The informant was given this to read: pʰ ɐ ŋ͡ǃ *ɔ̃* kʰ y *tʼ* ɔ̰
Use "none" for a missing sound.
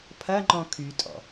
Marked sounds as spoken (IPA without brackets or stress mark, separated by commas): ɔ̃, tʼ